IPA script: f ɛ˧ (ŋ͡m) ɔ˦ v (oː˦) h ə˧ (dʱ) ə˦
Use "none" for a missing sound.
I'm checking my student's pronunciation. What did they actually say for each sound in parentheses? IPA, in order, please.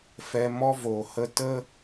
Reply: m, oː˨, t

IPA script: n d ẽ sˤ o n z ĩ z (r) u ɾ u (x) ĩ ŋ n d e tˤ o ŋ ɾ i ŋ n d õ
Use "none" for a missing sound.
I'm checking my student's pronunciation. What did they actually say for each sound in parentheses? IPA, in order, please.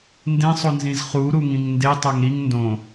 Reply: χ, ŋ

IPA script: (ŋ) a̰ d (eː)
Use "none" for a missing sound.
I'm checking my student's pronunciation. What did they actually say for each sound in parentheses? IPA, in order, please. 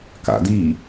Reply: k, iː

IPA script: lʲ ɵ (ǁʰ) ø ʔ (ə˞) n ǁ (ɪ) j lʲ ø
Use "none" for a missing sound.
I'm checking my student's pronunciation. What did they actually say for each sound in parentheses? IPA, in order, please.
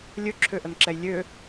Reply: ǁʰ, ə, ɛ

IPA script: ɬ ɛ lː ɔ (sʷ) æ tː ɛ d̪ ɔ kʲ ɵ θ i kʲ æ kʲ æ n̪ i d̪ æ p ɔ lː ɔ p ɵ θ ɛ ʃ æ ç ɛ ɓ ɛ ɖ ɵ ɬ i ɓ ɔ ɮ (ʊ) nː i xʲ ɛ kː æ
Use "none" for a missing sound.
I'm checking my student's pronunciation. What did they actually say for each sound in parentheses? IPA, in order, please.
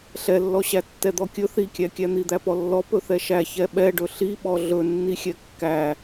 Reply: ɕ, ɵ

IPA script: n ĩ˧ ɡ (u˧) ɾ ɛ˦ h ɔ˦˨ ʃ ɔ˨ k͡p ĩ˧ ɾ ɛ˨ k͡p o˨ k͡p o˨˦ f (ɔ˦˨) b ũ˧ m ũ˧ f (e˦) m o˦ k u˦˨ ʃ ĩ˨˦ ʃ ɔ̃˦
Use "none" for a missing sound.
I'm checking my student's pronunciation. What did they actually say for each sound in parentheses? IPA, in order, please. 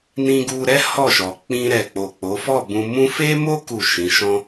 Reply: u˧, ɔ˦˨, e˦

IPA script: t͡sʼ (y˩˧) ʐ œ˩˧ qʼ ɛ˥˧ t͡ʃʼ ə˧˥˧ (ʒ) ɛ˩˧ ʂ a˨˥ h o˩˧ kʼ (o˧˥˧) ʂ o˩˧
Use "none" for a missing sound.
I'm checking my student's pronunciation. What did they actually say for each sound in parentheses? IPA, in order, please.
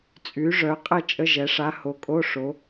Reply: y˩˧, ʒ, o˧˥˧

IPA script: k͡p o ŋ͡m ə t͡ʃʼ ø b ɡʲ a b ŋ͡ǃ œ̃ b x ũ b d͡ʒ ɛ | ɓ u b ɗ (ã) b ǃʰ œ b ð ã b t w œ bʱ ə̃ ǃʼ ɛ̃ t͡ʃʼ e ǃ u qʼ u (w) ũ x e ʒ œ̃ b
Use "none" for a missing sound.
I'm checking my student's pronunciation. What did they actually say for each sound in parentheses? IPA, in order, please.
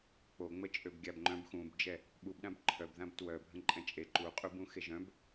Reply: ã, b

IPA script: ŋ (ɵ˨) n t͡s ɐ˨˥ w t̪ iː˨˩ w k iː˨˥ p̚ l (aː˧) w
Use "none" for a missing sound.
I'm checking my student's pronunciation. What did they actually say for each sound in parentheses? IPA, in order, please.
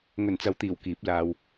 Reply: ɵ˨˩, aː˧

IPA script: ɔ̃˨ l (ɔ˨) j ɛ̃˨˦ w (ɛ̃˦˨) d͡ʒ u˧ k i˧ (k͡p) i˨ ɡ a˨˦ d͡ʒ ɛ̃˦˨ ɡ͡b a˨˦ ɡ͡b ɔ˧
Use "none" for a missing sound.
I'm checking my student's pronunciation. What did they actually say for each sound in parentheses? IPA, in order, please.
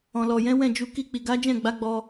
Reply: ɔ˨, ɛ̃˦˨, k͡p

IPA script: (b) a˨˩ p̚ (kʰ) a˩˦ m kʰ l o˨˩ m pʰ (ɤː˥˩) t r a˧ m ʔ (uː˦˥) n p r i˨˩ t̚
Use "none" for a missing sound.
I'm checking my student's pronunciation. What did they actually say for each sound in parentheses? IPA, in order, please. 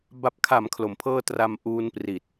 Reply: b, kʰ, ɤː˥˩, uː˦˥

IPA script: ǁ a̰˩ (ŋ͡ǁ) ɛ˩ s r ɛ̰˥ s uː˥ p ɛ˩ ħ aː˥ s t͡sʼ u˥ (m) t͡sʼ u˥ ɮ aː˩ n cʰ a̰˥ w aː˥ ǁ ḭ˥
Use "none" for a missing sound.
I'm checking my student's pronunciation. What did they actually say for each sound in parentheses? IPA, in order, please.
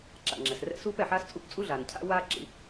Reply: ŋ͡ǁ, p

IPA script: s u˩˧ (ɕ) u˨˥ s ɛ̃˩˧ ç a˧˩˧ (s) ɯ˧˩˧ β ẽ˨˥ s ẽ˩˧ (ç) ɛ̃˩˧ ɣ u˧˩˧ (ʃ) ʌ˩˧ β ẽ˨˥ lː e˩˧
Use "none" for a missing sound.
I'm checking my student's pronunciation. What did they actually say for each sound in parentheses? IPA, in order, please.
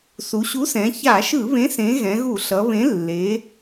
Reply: ɕ, ʃ, ɣ, ɬ

